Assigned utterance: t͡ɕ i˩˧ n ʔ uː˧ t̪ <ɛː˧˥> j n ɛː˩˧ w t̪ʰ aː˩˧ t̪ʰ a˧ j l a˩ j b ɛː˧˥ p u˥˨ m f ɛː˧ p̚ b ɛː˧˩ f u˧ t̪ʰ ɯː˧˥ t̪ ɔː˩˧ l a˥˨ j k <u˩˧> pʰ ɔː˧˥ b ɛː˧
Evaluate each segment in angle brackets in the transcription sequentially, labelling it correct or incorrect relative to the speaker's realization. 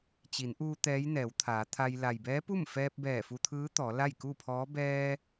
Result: correct, incorrect

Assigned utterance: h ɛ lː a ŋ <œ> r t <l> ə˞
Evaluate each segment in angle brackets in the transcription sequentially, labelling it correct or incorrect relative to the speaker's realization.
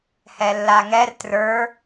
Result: incorrect, incorrect

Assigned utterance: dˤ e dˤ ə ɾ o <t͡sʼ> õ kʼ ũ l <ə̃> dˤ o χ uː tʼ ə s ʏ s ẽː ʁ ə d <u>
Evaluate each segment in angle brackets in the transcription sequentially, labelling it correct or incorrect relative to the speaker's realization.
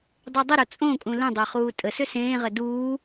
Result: correct, correct, incorrect

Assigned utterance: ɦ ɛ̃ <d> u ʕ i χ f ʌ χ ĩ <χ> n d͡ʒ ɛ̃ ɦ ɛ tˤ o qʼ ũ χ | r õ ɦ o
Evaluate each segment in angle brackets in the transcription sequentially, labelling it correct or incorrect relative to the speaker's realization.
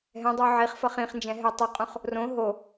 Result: incorrect, correct

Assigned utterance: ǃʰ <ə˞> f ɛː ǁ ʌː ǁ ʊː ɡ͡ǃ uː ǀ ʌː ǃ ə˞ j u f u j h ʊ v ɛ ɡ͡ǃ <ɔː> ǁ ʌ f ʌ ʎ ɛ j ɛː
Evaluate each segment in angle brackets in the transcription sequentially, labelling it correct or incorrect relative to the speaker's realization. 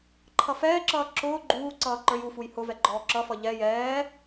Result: incorrect, correct

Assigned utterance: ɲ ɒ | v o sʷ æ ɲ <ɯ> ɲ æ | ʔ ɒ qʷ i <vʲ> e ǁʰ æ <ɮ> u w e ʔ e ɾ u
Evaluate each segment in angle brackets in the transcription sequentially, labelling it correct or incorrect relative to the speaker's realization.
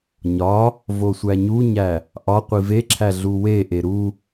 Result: incorrect, incorrect, correct

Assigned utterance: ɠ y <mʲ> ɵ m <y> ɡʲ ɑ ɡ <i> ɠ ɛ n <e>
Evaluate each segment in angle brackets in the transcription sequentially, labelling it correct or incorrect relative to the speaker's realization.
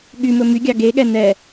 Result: incorrect, correct, incorrect, incorrect

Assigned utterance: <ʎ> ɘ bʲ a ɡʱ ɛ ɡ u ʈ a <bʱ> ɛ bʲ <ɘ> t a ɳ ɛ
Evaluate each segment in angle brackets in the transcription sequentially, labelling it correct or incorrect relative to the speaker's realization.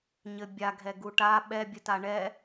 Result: incorrect, incorrect, correct

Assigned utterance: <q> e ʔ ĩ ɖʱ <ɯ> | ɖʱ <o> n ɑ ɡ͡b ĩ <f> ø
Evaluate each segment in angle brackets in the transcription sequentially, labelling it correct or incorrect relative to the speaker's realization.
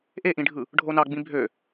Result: incorrect, correct, correct, incorrect

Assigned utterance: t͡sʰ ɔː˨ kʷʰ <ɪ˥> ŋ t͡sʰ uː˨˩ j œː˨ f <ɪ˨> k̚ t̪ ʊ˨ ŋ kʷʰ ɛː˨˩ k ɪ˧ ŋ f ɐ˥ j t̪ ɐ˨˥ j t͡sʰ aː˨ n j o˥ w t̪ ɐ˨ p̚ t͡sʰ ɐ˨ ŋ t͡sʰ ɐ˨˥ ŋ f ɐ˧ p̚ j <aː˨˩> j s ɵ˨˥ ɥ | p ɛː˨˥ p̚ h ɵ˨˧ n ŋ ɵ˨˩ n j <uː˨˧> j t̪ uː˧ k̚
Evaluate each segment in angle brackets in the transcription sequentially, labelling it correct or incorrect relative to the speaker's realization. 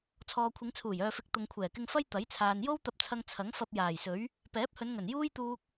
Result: incorrect, incorrect, correct, incorrect

